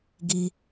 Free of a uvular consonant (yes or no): yes